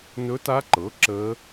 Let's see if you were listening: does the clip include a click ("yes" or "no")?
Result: yes